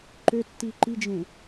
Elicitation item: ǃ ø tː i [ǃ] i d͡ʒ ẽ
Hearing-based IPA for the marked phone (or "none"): ǃ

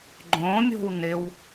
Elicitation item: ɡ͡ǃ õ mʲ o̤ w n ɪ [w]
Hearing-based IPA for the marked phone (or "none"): w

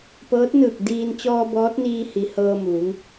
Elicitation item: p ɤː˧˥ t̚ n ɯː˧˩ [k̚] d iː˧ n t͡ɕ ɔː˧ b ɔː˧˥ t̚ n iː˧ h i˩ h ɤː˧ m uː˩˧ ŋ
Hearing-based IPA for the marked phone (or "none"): k̚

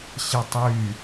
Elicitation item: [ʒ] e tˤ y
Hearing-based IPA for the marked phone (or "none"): ɕ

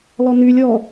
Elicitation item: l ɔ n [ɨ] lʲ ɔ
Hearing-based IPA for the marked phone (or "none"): y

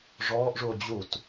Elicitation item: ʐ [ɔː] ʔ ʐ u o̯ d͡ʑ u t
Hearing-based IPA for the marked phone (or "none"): ɔː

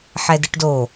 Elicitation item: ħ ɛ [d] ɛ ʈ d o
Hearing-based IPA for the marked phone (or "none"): d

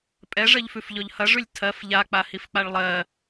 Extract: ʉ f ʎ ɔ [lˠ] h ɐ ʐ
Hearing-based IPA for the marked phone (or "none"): ʎ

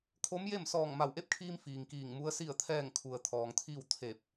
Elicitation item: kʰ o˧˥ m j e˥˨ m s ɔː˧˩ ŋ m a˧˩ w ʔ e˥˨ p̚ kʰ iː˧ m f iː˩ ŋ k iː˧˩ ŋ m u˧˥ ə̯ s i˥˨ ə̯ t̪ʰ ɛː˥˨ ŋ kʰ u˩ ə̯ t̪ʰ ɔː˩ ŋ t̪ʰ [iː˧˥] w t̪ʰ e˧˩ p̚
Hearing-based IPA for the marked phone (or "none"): iː˥˨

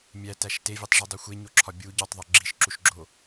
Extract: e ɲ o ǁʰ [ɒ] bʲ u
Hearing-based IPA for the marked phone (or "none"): ɒ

